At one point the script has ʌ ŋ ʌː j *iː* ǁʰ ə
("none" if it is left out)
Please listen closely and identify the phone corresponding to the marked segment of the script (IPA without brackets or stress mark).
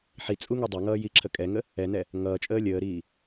i